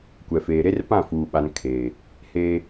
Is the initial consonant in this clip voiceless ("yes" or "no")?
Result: yes